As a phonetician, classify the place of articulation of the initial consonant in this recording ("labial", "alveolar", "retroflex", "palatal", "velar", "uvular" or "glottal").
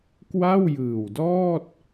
velar